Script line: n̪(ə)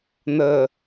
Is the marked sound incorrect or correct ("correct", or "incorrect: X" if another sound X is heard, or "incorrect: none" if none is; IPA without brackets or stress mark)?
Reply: correct